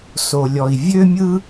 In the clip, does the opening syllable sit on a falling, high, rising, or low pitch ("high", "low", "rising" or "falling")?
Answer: low